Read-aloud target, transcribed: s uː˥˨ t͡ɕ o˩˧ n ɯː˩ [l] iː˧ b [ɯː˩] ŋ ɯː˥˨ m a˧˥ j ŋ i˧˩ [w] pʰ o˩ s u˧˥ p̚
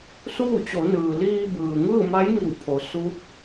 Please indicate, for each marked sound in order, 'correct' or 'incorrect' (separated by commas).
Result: correct, correct, correct